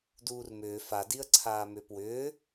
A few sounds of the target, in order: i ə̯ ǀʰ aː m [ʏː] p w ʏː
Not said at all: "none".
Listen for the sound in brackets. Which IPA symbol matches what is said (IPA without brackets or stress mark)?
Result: ʏː